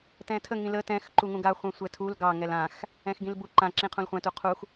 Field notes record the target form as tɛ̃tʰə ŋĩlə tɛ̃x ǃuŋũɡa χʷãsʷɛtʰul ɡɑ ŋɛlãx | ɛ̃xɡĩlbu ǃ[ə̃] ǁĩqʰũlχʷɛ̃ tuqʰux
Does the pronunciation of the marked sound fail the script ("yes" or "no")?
yes